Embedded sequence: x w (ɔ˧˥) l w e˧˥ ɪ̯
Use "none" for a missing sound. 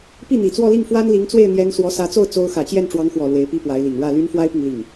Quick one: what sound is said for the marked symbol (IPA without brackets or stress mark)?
ɔ˨˩